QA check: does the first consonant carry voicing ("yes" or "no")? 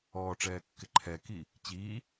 no